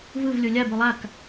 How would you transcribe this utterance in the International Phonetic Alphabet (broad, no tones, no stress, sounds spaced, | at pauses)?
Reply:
v ɯ v lʲ o lʲ a b o lˠ a k